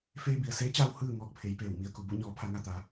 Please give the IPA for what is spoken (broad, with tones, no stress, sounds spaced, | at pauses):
f eː˧ b i˩ ə̯ s eː˧˥ t͡ɕ aː˧ w h ɯː˥˨ ŋ ɔː˥˨ k̚ pʰ e˩˧ j p eː˧˩ w m i˧˩ ə̯ k u˩ b u˥˨ ɲ ɔː˩˧ pʰ a˩˧ ŋ a˩ t̪ aː˩˧